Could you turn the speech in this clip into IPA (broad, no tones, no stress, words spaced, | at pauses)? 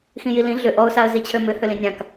xĩjilĩ ɮʏ ʔɔʊ̯saə̯ zit͡ɕʰømʏ hølĩnʲãk